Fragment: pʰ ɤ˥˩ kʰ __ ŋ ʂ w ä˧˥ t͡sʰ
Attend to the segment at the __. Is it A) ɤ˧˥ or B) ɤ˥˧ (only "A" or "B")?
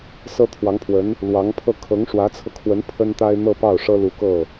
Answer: A